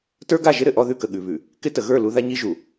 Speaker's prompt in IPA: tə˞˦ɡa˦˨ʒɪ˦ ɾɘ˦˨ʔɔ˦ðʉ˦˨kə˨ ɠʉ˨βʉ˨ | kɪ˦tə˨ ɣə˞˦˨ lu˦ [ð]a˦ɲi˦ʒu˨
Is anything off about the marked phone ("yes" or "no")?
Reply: no